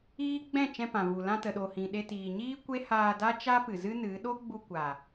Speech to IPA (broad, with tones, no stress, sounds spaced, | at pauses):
iː˦ ɡ͡b ɛ̃˦˨ t͡ʃ ɛ̃˧ p ã˨ v u˨ l ã˧ t ə˨ ɗ o˨ h ĩ˨ ɗ e˧ t iː˨ ɲ iː˦ kʷ e˦ h aː˧ d a˦ t͡ʃ a˦ p ɨ˨ z ɨ˦ n ɨ˨˦ ɗ o˦ ɡ͡b u˧ kʷ a˨